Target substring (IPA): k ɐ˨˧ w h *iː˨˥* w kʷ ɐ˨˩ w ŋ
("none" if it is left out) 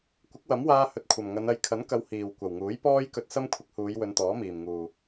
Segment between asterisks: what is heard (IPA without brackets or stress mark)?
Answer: iː˨˩